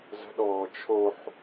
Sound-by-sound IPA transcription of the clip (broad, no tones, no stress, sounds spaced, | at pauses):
z ə̤ ɗ ɔː t͡ʃʰ o ħ